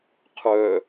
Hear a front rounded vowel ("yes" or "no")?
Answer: yes